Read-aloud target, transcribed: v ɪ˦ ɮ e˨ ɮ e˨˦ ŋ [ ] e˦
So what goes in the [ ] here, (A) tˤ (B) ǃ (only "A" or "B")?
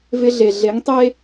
A